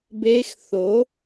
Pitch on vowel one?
rising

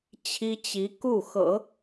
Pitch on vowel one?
high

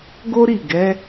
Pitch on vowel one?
high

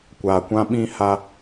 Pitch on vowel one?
low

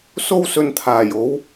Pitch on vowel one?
high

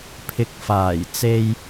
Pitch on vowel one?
low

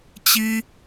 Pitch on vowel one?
high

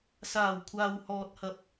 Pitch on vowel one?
low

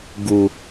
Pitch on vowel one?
low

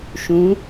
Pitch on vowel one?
rising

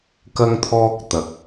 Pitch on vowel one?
high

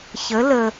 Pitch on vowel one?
rising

